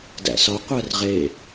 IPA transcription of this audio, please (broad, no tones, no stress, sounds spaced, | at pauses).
d æ̰ s ɒ qʷ æ r ʁ e